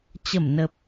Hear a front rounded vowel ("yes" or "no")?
no